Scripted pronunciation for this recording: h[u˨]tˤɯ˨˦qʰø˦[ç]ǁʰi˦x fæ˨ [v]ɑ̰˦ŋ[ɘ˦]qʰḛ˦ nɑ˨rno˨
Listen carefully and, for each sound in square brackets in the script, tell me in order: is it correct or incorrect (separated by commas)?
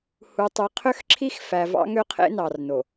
correct, incorrect, correct, incorrect